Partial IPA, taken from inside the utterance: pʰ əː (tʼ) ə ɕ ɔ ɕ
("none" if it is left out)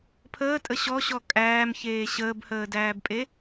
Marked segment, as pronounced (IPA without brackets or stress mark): tʼ